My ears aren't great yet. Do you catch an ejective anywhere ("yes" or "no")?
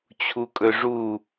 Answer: yes